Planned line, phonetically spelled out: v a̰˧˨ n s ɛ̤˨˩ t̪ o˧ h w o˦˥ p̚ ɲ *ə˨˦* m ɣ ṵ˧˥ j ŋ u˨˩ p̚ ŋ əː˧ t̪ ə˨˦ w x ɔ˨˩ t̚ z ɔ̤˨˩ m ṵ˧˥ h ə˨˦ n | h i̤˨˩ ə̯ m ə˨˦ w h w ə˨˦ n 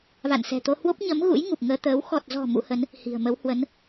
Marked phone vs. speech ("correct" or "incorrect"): correct